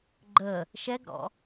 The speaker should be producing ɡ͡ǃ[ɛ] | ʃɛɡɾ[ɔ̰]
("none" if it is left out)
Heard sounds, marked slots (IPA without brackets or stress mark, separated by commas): ə, ɔ̰